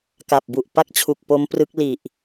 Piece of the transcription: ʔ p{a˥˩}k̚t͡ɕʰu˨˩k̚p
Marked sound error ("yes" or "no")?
no